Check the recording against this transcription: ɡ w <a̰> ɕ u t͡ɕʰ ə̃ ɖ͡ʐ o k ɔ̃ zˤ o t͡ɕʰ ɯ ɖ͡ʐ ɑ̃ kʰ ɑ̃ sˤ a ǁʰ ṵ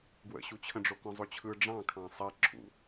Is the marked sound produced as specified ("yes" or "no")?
no